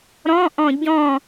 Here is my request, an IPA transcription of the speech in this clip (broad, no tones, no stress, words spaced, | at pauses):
ɾɔ̃ʔɔ̃ ɟɔ̃